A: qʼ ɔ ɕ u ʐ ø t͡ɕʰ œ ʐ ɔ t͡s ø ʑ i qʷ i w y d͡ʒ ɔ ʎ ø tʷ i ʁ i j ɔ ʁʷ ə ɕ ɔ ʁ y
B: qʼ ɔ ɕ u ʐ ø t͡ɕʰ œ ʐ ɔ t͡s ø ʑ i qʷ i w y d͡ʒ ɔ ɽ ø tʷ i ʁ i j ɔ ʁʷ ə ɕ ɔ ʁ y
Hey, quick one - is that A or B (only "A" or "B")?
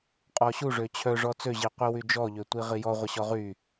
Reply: A